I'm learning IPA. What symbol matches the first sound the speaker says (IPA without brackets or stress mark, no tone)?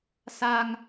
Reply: s